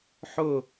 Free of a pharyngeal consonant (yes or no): no